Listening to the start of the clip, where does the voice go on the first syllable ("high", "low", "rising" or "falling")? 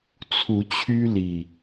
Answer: rising